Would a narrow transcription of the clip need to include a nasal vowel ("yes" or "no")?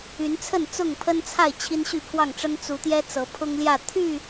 no